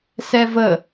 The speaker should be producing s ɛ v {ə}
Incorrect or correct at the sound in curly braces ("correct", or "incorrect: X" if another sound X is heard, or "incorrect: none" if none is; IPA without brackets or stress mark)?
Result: correct